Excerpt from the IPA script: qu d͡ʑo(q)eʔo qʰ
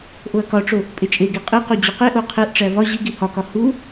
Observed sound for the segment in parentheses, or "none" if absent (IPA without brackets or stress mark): q